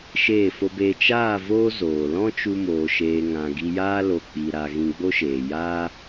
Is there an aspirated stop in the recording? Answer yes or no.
no